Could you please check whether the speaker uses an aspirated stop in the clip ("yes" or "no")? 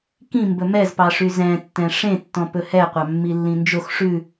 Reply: no